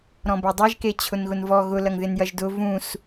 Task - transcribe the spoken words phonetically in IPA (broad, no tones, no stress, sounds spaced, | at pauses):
ɾ ɔ̃ b ɐ dˤ e ʒ k e t͡ɕʰ ʊ n ɣ ʊ n v ɔ ɣ ʊ l ɐ ŋ ð ɪ n j ɐ ʒ d ʊ v ũ s